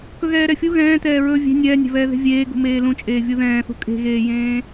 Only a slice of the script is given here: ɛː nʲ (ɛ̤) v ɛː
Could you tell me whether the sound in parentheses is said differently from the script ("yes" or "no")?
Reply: no